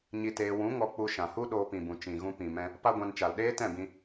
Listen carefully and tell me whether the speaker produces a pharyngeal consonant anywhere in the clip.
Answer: no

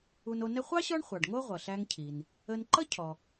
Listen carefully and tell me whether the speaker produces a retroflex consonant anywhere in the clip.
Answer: yes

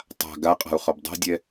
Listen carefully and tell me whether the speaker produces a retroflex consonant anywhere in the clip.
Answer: no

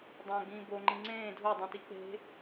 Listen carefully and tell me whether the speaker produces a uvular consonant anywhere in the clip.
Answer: no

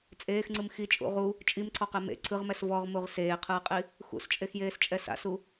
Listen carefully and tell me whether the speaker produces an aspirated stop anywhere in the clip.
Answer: yes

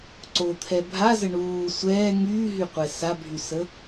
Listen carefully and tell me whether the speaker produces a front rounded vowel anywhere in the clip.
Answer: yes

